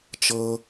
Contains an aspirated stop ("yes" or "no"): no